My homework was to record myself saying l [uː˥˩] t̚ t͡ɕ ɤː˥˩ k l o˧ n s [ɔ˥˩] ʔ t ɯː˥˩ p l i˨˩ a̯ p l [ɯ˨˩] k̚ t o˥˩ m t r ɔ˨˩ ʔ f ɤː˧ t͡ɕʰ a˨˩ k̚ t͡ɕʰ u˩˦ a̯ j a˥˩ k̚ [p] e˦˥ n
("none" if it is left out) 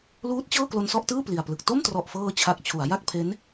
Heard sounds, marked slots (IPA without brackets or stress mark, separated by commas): uː˦˥, ɔ˥˩, ɯ˨˩, pʰ